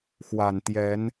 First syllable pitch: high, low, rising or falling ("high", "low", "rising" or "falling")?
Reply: low